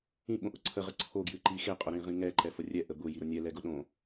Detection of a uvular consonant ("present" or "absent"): present